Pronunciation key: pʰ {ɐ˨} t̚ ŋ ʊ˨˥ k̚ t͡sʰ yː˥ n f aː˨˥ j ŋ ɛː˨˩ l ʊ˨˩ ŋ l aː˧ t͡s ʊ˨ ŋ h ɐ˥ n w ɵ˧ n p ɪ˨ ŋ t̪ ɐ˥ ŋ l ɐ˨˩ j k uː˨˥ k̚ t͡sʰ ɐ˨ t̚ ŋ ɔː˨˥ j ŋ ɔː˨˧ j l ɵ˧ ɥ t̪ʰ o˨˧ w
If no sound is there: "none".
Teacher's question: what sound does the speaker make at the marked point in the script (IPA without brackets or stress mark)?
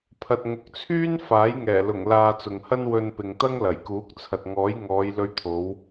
ɐ˨